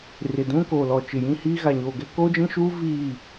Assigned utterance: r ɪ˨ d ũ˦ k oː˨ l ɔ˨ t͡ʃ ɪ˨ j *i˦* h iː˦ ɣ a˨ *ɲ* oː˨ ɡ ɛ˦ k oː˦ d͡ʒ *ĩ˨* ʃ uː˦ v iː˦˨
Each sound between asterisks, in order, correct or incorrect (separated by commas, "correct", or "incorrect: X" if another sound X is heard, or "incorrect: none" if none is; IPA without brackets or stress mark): incorrect: ĩ˦, correct, incorrect: ĩ˦